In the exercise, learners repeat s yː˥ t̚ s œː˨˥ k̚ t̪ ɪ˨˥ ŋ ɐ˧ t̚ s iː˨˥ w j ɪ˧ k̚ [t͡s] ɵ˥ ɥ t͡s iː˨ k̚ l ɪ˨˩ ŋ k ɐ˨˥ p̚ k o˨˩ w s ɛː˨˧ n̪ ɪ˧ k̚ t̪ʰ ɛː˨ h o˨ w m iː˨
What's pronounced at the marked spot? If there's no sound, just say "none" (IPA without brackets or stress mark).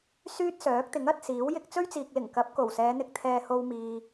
t͡s